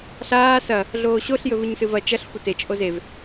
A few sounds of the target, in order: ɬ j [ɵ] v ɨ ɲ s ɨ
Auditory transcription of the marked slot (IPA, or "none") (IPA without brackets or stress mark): ɵ